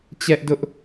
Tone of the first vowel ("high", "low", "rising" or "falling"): high